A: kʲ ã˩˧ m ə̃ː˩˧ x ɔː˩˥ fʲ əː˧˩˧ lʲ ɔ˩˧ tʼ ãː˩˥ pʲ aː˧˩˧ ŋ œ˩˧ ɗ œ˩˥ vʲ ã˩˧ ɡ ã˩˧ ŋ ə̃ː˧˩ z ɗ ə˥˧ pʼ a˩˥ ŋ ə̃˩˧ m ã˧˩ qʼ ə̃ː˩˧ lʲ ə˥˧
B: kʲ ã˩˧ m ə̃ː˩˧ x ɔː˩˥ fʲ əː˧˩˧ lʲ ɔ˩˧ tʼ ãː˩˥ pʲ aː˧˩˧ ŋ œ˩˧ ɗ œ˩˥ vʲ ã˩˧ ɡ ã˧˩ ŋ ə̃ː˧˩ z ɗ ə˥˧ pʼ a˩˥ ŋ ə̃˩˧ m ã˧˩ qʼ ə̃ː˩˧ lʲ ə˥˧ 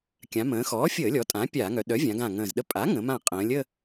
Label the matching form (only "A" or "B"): B